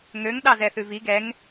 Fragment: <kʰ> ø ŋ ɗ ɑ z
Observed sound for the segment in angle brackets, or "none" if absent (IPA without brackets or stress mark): ŋ